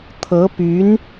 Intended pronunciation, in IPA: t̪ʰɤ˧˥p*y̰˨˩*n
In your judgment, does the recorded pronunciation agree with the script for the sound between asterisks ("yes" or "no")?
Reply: no